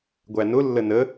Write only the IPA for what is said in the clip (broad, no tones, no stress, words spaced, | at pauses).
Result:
ɡʷænʊ lːənə